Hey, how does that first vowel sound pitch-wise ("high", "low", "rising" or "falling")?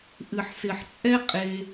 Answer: low